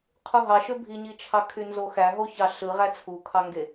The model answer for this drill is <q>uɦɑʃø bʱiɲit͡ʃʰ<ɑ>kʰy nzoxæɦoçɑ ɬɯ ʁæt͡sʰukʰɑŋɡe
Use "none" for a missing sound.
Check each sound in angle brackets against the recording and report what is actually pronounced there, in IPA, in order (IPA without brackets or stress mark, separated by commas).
qʰ, ɑ